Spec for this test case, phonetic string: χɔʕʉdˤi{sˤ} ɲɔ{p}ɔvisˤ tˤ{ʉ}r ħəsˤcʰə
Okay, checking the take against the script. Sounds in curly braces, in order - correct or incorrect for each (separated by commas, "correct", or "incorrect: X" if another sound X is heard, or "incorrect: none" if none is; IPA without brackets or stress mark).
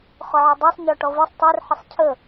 correct, incorrect: ʈ, incorrect: u